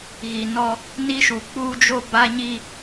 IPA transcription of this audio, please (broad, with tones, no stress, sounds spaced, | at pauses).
ɣ i˨ n ɔ˦ | n i˦ ʃ u˨ k͡p uː˦ d͡ʒ o˦ b a˦ ɲ i˦